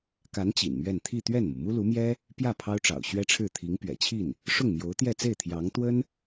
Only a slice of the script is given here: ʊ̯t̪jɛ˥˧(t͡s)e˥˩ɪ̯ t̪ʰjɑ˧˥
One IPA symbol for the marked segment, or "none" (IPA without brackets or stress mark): t͡s